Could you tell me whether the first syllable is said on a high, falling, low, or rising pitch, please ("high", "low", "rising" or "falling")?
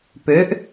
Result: rising